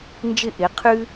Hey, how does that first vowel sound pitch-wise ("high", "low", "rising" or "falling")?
falling